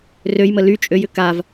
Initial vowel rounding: rounded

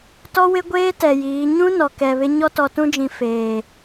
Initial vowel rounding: rounded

